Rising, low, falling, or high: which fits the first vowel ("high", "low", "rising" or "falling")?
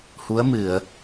rising